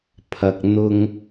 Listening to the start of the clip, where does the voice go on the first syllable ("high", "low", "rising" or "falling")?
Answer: low